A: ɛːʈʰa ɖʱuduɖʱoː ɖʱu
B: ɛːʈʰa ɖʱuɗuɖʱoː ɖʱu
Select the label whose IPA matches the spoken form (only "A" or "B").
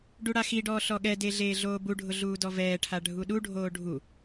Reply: B